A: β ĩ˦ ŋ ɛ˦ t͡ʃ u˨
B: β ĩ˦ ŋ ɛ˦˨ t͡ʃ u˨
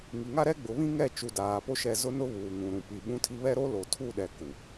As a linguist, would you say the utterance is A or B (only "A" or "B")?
B